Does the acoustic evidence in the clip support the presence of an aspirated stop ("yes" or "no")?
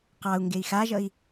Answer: no